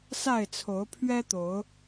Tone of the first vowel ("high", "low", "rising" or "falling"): falling